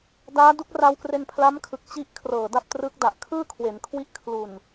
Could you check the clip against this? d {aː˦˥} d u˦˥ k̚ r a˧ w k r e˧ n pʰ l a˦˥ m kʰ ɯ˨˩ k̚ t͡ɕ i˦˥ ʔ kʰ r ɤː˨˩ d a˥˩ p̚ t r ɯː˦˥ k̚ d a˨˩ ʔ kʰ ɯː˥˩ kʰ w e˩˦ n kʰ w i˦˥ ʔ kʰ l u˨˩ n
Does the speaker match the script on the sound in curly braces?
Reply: yes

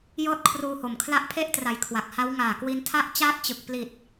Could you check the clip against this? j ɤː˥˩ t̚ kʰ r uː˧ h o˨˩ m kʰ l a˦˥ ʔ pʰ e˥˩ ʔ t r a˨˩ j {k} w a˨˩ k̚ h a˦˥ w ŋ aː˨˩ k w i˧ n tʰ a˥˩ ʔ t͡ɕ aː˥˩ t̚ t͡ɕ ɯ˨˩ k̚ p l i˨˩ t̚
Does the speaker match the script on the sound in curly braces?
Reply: no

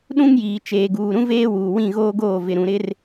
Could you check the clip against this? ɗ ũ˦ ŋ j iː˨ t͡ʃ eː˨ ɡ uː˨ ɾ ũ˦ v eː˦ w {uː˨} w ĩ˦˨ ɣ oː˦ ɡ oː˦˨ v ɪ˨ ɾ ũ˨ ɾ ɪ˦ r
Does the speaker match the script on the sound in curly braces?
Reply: yes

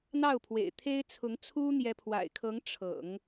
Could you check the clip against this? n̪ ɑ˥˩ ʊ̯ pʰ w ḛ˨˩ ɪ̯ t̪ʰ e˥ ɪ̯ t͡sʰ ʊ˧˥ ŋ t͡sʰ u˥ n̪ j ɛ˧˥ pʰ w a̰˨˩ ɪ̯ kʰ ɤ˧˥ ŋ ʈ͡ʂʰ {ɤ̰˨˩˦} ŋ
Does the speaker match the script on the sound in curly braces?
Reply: yes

